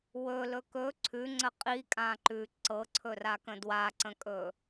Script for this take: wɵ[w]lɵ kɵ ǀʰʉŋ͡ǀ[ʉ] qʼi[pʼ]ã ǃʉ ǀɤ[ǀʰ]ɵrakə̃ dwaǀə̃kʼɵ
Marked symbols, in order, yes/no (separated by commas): no, no, no, yes